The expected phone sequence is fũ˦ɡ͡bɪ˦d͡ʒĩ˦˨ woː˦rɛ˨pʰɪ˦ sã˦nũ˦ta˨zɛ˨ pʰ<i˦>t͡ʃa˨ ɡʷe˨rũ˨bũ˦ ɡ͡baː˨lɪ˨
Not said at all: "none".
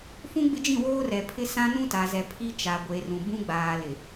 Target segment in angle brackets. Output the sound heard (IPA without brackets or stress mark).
i˦